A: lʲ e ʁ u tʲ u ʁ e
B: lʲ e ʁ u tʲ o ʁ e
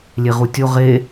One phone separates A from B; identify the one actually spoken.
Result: B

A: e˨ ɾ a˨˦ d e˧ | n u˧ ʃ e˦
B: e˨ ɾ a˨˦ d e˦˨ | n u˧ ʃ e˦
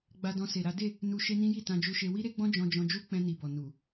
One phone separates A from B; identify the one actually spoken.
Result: B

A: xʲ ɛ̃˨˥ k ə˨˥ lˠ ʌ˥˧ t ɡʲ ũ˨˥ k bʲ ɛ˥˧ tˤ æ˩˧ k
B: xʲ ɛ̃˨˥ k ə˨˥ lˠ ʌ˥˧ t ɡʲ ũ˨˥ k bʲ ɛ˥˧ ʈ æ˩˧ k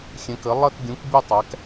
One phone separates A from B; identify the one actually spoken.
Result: A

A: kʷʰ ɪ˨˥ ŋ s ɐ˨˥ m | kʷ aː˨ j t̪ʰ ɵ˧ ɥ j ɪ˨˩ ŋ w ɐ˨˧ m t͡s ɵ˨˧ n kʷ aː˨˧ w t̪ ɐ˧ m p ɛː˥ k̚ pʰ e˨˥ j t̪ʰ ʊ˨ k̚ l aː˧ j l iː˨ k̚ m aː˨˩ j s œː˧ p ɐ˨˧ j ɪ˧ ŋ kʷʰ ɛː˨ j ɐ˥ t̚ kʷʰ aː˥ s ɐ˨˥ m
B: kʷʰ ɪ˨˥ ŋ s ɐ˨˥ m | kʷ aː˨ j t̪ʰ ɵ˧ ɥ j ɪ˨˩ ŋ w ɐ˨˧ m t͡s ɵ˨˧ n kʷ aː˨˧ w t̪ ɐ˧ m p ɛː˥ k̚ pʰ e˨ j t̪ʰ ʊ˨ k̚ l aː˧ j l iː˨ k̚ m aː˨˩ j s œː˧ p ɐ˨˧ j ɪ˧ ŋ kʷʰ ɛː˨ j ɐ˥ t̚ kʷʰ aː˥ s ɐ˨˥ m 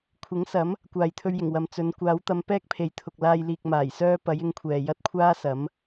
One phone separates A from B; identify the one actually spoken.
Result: B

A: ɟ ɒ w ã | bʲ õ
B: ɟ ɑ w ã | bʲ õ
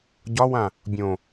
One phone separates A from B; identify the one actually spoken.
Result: A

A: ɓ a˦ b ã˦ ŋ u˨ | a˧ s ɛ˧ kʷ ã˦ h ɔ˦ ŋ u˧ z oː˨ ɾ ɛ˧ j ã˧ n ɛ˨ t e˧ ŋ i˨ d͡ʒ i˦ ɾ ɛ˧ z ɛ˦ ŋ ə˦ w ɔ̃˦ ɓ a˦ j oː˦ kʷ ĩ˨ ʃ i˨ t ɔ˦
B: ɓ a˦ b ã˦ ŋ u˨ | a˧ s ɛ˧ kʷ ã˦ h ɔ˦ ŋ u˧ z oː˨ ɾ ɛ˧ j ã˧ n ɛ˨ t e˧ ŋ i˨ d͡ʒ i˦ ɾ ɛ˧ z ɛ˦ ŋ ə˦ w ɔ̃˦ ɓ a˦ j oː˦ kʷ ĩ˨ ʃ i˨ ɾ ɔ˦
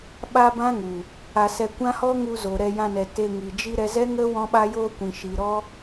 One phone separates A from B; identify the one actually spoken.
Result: B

